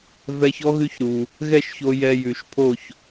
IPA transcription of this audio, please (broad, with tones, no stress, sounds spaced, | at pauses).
v ɛ˧ ç ɔ˧˥ ɣ ʉ˧˥ ç ɾ u˩ | ɣ ɛ˥˨ ʃ ç o˧ j ɛ˧ j ʉ˩ ʃ pʰ o˥˨ ç